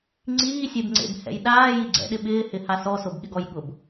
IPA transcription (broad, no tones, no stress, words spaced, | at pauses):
ŋ͡ǀiːsʲebŋ͡ǀḛbhɛ̰j ɗaːji ɡ͡ǀɛ̰ɗɪ ɓɪːhɪha sɔsobɠɪɡɔj ɠʊb